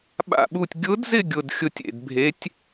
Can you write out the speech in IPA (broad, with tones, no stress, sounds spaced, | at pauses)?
ɓ a̰˥˧ ɓ u˥˧ tʲ ɡʲ ʊ˧˥ d z ɪ˥˧ ɡʲ ʊ˥˧ d xʲ ʊ˥˧ tʲ ḛ˥˧ d bʱ e˧˥ tʲ